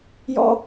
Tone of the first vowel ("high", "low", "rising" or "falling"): high